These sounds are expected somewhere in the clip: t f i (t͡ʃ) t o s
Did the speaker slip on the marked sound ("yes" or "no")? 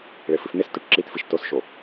yes